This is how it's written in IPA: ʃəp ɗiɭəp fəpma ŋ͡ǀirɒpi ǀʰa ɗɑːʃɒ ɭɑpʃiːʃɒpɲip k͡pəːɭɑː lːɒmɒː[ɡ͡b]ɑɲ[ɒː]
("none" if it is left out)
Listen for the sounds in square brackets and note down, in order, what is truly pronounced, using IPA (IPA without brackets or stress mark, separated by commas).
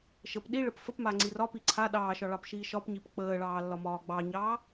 ɡ͡b, ɑː